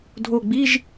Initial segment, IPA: dʱ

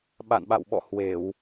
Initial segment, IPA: ɓ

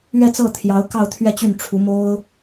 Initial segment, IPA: ɥ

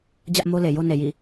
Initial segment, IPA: d͡ʑ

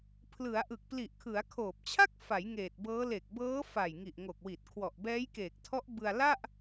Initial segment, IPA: pʰ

